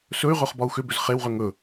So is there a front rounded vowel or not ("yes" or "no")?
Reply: yes